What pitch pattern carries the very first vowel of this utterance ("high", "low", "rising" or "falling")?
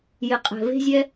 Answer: low